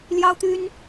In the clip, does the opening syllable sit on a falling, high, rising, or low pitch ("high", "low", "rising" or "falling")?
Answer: high